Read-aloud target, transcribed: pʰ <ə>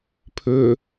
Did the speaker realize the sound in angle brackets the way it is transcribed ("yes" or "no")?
no